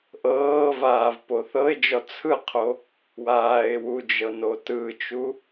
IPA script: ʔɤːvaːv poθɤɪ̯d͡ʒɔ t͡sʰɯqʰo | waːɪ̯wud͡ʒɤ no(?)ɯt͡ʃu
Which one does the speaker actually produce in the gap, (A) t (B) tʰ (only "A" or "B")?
A